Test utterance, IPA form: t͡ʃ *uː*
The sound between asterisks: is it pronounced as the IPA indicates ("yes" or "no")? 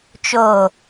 no